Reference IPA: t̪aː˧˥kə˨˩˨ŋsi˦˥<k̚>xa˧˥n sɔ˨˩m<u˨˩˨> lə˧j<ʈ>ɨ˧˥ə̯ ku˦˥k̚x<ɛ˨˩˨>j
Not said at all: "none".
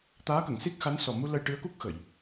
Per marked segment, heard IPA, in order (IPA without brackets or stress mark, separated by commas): k̚, u˧, ʈ, ə˨˩˨